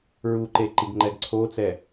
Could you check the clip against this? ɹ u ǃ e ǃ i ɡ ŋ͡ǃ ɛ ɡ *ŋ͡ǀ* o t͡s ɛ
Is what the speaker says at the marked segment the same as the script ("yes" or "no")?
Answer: no